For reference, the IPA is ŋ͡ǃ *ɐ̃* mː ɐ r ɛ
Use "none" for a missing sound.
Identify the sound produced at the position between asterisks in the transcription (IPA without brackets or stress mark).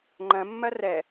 ɐ̃